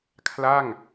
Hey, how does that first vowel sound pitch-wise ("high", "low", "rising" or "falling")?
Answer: falling